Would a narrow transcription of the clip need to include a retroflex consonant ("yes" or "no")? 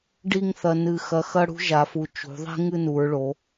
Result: yes